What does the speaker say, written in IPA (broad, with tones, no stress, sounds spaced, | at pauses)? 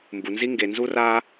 m b u˨ n z i˦ ŋ ɡ e˨ n z u˦ r a˦